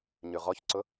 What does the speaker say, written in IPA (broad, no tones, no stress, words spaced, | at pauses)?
ɲʉʁɔçǀʊ